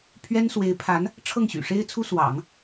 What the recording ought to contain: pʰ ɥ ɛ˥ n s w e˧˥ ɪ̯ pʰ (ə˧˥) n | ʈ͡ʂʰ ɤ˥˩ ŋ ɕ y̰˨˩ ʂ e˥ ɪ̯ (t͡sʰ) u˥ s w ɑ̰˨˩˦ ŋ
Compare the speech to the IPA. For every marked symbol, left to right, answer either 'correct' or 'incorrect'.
incorrect, correct

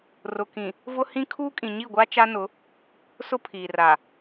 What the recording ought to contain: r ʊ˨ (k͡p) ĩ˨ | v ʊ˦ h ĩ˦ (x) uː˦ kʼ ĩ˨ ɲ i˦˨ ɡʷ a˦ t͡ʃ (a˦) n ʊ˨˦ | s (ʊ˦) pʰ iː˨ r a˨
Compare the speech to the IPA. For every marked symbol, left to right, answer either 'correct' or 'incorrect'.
incorrect, incorrect, correct, correct

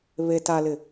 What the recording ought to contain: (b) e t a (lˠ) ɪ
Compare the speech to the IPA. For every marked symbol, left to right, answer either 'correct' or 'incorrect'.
incorrect, incorrect

